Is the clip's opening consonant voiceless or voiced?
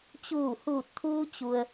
voiceless